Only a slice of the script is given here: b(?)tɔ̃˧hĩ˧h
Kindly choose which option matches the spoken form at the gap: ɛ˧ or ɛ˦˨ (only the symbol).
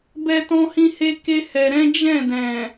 ɛ˧